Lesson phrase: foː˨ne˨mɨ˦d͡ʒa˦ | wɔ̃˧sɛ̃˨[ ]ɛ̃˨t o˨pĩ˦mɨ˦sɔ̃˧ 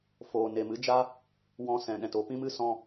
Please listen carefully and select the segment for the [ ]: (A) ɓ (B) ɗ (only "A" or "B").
B